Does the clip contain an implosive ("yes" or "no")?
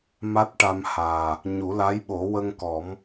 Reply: yes